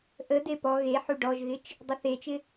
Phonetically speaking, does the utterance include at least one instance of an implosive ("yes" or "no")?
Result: no